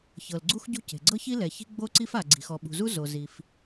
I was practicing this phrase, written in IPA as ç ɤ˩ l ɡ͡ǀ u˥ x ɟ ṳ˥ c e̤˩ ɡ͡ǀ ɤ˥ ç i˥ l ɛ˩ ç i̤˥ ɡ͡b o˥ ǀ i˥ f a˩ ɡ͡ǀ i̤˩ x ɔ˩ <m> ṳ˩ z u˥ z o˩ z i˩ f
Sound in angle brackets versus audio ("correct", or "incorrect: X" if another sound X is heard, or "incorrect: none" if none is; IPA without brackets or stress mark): incorrect: ɓ